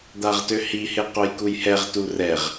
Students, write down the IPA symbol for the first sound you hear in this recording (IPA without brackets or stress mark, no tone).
d̪